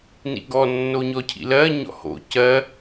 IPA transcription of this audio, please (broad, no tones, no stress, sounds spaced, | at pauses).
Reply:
n ḭ ɡ ɔ nː o ɲ ɔ cʰ ḭ l ɜ ɲ ɔ̰ h o̰ c ɜ